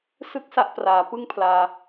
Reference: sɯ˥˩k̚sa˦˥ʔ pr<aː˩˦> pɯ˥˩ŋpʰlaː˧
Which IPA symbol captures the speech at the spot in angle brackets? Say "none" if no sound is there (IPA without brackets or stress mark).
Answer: aː˩˦